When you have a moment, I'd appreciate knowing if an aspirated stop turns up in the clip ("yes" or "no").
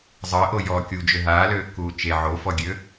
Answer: no